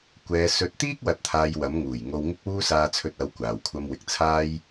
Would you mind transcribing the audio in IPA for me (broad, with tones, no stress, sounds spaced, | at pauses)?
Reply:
kʷ ɛː˨˧ s ɵ˨˥ t̚ t̪ iː˥ k̚ w ɐ˨ t̚ t̪ʰ aː˨ j w ɐ˨˥ m ŋ uː˨˩ j ŋ o˧ w ŋ ɪ˥ k̚ w uː˥ s aː˧ t͡sʰ ɵ˧ t̚ ɐ˨˥ w kʷ aː˨ w kʷʰ ɐ˧ m w ɪ˨ k̚ t͡sʰ aː˥ j